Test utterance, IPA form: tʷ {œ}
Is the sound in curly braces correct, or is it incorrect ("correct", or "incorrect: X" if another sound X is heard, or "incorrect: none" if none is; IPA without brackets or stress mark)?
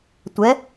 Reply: incorrect: ɛ